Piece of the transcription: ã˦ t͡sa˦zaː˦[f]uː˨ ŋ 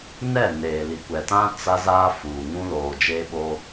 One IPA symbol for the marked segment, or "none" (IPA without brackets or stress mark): f